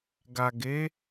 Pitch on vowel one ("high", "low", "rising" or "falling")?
low